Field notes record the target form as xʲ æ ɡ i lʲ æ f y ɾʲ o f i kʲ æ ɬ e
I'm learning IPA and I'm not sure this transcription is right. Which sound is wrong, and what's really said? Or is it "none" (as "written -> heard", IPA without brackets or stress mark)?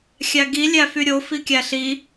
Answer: e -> i